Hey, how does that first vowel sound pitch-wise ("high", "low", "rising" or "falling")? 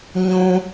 high